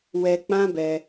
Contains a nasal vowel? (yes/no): yes